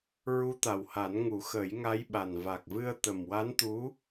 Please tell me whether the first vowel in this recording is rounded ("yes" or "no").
yes